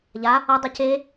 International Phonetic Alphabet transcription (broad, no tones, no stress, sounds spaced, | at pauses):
ʎ a | ʌ dˤ ɯ c e